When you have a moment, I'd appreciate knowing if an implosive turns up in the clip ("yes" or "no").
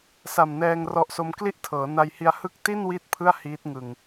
no